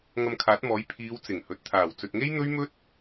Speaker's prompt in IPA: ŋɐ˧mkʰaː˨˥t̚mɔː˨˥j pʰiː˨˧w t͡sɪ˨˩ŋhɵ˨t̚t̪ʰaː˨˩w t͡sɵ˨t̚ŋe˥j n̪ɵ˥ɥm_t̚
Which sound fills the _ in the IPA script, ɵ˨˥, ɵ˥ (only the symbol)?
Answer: ɵ˥